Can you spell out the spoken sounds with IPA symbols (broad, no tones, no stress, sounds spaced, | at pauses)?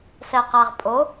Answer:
s ɛ q a ʁ pʼ o